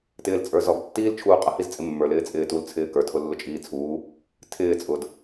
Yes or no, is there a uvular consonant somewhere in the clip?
yes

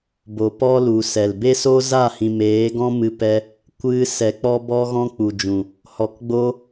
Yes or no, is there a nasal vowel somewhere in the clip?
yes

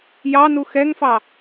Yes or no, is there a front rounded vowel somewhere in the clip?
no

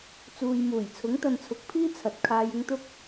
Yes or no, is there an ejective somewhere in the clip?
no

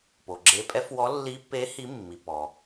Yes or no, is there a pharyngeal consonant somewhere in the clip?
no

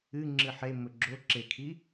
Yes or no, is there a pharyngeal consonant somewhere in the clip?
yes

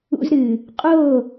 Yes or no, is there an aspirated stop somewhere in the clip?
no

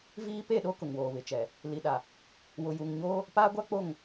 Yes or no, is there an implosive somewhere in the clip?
yes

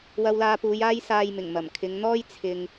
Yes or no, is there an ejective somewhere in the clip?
no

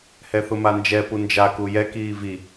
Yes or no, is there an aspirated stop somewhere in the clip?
no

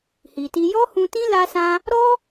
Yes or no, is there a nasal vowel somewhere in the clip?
yes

